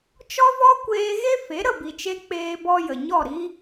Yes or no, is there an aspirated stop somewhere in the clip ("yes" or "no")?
no